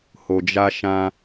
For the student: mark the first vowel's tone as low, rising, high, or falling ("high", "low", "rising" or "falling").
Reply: low